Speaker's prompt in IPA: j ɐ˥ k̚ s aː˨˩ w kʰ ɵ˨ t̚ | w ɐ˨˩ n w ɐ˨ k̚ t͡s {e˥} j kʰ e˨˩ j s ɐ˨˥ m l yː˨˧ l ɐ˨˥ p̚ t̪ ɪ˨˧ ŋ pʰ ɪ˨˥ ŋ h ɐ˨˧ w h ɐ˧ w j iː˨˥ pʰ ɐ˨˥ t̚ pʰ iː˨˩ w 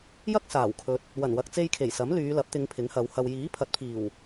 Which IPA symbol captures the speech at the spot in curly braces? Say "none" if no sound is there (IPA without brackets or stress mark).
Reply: e˧